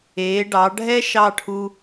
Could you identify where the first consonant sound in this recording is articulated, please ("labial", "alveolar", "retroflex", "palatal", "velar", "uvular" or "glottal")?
retroflex